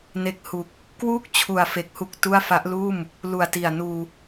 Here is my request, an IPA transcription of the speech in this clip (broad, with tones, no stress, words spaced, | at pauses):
ne˨˩k̚ hu˨˩k̚ | kwuː˥˩k̚t͡ɕʰu˨˩a̯fe˨˩k̚ hu˦˥k̚tu˥˩a̯ fa˦˥ʔluː˥˩m | lu˨˩a̯ti˨˩a̯ nuː˧